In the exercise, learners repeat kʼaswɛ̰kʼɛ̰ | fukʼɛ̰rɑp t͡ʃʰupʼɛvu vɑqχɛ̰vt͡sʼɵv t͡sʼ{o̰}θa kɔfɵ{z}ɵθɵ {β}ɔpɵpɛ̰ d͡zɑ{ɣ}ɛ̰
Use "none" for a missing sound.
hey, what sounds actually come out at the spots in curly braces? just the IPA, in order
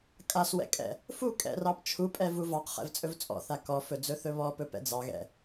ɔ̰, d͡z, β, ɣ

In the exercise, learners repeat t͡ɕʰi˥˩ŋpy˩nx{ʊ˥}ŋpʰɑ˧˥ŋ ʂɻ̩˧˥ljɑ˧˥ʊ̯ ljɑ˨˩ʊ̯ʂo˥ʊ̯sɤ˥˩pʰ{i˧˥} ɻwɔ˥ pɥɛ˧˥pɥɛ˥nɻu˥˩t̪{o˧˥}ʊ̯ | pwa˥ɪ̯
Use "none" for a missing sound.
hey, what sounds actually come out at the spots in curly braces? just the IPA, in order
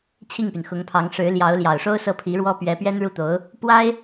ʊ˧˥, i˧˥, o˧˥

